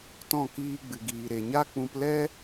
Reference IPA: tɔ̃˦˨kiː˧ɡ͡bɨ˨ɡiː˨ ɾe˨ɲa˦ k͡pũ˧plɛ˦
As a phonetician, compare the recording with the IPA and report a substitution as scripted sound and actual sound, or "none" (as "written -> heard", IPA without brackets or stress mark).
none